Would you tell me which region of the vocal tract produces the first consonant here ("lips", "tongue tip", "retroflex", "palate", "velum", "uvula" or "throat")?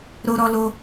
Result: tongue tip